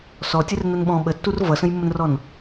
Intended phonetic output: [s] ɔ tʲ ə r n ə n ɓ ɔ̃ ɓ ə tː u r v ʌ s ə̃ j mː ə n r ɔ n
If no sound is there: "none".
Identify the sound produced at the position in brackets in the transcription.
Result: s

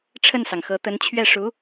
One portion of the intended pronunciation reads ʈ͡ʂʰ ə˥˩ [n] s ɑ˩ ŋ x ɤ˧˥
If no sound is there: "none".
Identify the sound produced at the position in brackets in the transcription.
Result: n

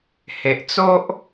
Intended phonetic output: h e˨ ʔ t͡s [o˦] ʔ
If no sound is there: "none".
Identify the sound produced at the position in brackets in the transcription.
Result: o˦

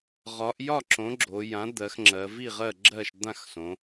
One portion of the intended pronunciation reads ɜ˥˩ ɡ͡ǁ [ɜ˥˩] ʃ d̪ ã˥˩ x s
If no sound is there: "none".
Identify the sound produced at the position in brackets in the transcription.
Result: ɜ˥˩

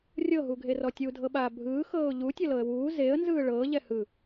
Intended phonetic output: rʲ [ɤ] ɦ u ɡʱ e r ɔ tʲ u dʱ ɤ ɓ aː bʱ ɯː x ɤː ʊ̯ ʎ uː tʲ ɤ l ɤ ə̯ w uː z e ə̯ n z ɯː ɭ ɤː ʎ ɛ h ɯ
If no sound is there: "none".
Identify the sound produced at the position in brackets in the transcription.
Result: ɤ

